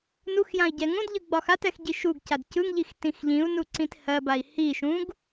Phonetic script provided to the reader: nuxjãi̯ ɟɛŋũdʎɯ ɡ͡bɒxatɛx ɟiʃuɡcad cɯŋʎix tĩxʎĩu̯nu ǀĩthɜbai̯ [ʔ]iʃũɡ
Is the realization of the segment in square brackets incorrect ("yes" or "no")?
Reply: yes